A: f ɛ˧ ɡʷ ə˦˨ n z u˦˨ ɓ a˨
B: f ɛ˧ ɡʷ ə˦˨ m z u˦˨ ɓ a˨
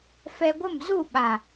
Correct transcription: B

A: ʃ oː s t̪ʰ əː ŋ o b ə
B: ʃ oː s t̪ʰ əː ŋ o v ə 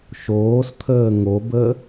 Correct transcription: A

